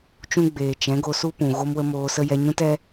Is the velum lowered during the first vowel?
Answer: yes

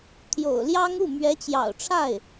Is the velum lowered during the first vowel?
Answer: no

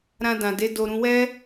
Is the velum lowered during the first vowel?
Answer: yes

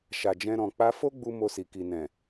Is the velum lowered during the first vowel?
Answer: no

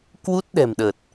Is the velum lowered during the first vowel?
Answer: no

